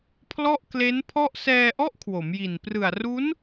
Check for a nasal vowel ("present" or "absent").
absent